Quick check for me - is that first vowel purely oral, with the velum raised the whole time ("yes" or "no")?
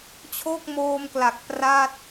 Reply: yes